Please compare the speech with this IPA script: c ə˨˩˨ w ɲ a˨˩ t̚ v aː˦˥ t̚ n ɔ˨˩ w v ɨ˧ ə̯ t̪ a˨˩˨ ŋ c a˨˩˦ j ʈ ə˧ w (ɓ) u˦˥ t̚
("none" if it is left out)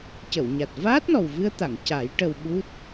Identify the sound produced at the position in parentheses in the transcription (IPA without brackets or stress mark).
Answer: ɓ